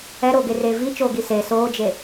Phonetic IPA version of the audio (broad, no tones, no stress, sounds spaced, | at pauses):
ɛ ɾ oː ɡ e r eː v i t͡ʃ oː ɡ i s e s oː d͡ʒ e